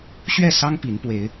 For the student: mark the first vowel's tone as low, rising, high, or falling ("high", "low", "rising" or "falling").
falling